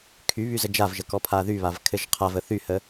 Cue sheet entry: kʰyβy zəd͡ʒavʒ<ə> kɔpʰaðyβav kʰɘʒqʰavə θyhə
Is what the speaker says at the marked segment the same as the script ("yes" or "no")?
yes